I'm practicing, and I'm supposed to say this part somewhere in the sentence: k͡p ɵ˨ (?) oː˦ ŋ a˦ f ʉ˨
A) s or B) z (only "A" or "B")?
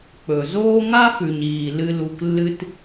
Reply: B